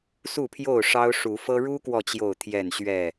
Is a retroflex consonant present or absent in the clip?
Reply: present